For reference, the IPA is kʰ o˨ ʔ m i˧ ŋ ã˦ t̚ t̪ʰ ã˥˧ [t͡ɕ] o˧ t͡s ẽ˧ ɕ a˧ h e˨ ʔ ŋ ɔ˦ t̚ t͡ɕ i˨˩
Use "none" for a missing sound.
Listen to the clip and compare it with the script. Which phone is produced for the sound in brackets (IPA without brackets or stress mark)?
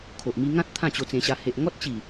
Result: t͡ɕ